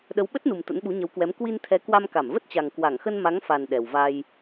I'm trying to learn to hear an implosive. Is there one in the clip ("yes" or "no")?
yes